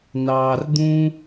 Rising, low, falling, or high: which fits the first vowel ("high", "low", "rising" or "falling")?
low